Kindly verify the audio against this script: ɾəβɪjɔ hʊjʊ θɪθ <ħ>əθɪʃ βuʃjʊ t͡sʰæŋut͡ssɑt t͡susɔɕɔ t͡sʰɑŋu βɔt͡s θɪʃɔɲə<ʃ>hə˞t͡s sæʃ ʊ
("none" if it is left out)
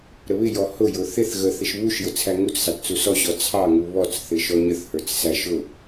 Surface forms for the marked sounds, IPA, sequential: ɣ, θ

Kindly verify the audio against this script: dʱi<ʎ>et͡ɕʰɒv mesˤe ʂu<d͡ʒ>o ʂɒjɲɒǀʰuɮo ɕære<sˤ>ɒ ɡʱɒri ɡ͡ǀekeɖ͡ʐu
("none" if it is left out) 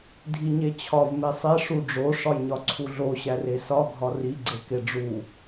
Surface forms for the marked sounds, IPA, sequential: ɲ, ɖ͡ʐ, s

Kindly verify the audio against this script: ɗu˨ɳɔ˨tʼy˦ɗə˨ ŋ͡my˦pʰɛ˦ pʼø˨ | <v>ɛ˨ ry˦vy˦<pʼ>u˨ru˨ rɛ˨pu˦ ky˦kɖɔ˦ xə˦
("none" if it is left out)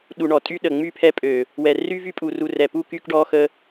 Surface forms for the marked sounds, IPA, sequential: w, pʼ

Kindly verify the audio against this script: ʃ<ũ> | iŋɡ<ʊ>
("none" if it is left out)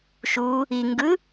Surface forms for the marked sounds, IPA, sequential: u, ɯ

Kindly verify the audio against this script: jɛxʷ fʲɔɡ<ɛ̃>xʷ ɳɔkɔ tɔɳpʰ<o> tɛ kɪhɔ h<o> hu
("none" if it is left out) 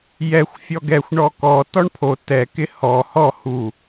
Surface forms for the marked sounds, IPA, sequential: ɛ, o, ɔ

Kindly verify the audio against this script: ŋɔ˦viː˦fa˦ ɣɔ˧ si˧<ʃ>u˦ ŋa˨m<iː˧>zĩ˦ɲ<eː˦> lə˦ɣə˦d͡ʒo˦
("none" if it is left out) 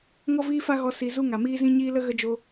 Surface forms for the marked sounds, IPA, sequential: z, iː˦, iː˦

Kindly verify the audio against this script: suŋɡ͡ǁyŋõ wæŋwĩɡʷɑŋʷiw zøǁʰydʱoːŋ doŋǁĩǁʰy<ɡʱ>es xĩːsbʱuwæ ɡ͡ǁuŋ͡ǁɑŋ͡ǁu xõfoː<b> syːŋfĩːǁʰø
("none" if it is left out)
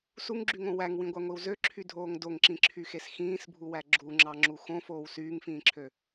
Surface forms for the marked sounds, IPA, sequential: x, w

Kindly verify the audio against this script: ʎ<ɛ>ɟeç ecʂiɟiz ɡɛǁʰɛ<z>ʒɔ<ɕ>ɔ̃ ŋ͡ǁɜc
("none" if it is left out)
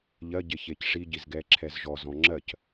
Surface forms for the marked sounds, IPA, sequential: ɜ, z, z

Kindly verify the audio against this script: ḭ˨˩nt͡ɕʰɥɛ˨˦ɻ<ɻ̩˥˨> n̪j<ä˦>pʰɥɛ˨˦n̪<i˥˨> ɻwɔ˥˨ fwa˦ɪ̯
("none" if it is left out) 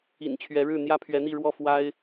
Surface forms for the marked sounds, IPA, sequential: ɻ̩˥˨, ä˦, i˥˨

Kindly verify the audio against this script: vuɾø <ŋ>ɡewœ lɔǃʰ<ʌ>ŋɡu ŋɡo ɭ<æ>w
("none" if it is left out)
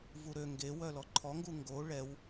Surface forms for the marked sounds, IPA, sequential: ŋ, ɔ, ɛ

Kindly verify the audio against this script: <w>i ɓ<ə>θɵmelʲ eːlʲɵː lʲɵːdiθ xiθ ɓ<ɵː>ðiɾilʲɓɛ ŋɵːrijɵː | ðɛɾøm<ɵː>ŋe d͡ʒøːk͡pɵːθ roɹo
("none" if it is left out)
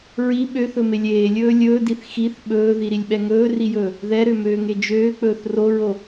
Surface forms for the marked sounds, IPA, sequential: ɹ, ø, ɵː, øː

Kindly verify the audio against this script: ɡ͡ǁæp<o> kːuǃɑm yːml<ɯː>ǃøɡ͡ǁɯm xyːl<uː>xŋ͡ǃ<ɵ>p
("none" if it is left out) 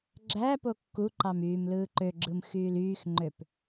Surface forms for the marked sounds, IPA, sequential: o, ɯː, yː, ø

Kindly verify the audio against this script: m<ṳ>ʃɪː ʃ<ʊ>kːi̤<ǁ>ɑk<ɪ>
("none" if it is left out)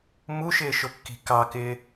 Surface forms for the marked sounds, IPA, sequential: u, ʊ, k, ɪː

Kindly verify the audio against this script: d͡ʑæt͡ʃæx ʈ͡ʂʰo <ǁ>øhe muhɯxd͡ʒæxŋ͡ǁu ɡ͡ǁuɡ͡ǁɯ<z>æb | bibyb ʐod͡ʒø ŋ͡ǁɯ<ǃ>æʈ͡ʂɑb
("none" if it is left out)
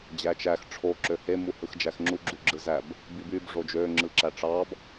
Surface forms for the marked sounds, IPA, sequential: ǁ, z, ǁ

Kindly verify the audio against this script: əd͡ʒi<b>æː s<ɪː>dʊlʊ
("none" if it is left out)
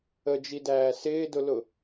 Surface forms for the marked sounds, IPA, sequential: d, ɪː

